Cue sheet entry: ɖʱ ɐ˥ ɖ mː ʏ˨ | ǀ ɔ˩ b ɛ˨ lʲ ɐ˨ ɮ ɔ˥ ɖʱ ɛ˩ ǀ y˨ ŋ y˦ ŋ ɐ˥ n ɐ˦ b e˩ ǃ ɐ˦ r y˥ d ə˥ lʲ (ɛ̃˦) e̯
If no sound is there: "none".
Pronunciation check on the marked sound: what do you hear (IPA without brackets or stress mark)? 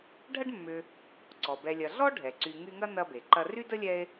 ɛ˦